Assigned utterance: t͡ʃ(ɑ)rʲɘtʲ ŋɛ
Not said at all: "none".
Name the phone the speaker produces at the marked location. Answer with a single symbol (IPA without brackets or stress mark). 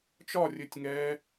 ɒ